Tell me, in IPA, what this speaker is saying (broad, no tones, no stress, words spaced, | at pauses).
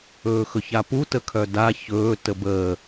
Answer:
ɵːxɵçapu təkʰœda çɵː təbəː